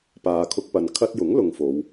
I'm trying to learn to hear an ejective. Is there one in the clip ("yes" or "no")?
no